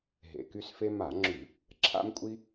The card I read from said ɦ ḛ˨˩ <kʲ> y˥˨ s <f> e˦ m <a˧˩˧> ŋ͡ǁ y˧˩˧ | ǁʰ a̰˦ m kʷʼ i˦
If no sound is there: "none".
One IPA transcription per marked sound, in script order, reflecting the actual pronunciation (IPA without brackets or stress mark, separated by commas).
k, f, a˧˩˧